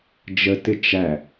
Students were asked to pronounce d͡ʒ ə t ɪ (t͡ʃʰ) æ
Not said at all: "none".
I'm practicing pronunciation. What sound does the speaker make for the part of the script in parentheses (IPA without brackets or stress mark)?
t͡ʃ